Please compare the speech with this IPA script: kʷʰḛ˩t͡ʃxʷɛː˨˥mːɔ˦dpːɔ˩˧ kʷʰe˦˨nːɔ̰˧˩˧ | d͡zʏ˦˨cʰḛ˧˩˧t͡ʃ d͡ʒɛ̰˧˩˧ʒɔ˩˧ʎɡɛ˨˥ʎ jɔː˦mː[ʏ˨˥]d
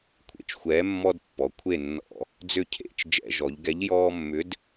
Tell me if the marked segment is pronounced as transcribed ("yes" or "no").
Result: yes